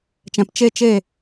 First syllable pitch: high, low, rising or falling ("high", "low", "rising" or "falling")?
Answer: low